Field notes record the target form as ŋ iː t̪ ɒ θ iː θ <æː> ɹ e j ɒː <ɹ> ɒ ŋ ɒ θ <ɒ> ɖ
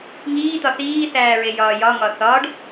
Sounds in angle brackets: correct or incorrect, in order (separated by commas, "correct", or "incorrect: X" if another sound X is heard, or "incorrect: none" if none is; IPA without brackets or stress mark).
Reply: correct, incorrect: j, incorrect: ɒː